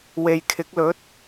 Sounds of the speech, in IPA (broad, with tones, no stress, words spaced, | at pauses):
we˨jkʰɪ˨˥k̚lɵ˨˥t̚